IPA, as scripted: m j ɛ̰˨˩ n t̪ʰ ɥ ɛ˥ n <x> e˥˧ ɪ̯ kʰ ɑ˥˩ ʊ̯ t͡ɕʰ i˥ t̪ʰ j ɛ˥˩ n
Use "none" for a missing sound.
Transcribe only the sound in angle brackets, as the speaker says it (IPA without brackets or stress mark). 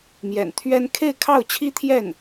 kʰ